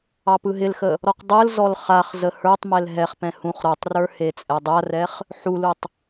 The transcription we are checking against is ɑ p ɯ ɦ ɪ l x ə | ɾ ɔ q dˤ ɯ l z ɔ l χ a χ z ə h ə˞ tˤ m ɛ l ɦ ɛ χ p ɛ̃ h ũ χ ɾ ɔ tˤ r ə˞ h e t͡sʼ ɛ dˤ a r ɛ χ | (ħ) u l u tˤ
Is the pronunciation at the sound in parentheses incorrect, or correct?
correct